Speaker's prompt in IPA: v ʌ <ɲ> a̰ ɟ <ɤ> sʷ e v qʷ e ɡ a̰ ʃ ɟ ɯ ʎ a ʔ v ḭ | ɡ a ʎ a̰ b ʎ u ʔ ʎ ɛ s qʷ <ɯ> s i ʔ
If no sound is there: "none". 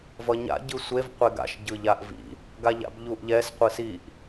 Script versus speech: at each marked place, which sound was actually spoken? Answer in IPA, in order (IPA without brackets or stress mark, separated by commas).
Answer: ɲ, ɯ, ɯ